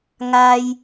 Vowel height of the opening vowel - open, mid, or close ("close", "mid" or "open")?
open